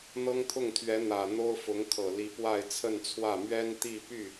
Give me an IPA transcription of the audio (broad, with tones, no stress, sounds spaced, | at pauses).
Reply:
n̪ ɤ˥ ŋ t̪ʰ ʊ˥˩ ŋ t̪ʰ ɥ ɛ˧˥ n̪ ä˨˩ n̪ o˥ ʊ̯ f ʊ˧˥ ŋ kʰ ɤ˨˩ l i˧˥ p w a˥˧ ɪ̯ t͡sʰ ə˥˧ n t͡sʰ w ä˥˩ m ɥ ɛ˥ n t̪ i˥˧ p y˥˩